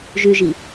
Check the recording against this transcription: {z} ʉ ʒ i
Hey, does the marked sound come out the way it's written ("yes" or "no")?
no